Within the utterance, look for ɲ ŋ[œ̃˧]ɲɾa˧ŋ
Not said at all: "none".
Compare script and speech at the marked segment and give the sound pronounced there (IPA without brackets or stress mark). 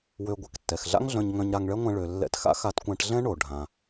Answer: œ̃˧